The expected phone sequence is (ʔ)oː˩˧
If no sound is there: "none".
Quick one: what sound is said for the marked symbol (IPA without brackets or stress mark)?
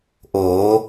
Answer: ʔ